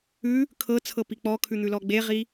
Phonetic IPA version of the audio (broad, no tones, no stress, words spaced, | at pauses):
ʉ | kʰɤt͡sʰɤpi k͡pɔkʰʉn̪ʉlɔ ɡ͡beʁi